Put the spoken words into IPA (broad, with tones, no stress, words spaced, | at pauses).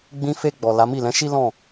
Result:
ɡ͡bĩ˧fe˧ɡ͡bɔ˨ la˨˦mi˦˨ lɛ̃˨˦ʃi˦ lɔ̃˦˨